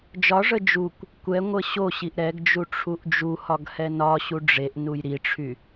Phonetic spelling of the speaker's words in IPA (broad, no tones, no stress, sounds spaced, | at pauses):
d͡ʒ ɒ ʐ ə d͡ʒ u kʷ | kʷ ɛ ŋʷ ə ɕ o ɕ i ʔ ɾ ɛ ɡ d͡ʒ u ʈ͡ʂʰ u ʔ d͡ʒ u h ɒ ɡ h ɛ n ɒ ɕ u ɖ͡ʐ e ʔ n u j ɾ i ʈ͡ʂʰ y